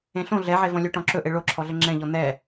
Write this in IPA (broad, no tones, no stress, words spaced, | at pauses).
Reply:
ẽɬõ ɮɛʕevɔ̃ lʲoʈɔ̃ǁɵʔe ɭoǁʰɔɮə ŋ͡ǁɛ̃ʎɔ n̪ɛ